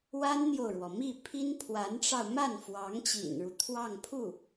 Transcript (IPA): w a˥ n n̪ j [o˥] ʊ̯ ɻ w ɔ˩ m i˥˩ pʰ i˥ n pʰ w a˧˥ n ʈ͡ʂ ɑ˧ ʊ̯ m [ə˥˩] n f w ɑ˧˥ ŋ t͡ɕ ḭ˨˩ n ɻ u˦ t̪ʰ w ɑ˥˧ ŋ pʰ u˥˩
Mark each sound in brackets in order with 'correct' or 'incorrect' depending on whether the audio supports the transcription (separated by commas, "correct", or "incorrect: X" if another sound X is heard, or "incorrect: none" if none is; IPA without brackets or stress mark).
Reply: incorrect: o˨, incorrect: a˥˩